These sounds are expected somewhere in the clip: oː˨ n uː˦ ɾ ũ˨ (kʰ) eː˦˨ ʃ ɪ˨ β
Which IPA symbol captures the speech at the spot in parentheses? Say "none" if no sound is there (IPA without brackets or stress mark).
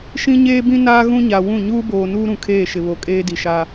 kʰ